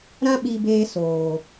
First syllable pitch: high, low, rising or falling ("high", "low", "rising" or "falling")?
high